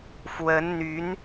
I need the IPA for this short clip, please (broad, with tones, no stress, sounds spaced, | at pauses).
f w ə˧˥ n n̪ y˧˥ n